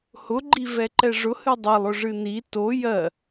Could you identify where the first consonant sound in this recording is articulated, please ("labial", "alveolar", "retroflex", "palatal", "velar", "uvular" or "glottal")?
glottal